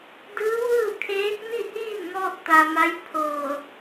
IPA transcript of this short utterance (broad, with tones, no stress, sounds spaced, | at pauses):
d ɯː˧˥ ʋ ɯː˥˨ kʰ eː˧˥ k̚ n i˥˨ h iː˥˨ n ŋ ɔː˧ t̚ t̪ a˩ m a˧˥ j pʰ ɤː˧˩